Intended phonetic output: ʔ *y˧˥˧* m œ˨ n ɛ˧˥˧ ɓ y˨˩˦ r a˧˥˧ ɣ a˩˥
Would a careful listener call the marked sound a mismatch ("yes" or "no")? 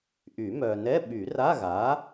yes